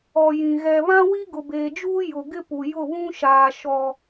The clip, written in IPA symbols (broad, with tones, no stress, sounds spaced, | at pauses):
ɔ˨ j ĩ˨ ɣ ɛ˨ β ã˦ w i˦ ɡ ʊ˨ b eː˨ d͡ʒ uː˦ j ʊ˨ ɡ ɪ˦ p u˨ j ʊ˦˨ β ũ˦ ʃ aː˨ ʃ ɔ˨